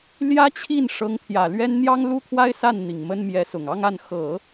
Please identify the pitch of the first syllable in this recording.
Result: high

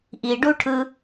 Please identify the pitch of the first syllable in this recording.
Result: low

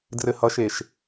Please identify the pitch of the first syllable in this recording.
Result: low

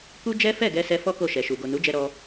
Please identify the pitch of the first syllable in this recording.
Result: high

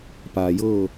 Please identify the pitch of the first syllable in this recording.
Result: low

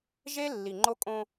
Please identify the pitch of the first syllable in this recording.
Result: high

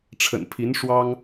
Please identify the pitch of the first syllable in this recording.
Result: low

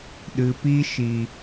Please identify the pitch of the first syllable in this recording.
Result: low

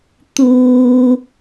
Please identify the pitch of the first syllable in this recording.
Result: low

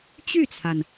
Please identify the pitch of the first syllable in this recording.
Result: falling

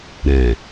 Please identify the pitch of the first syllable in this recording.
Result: low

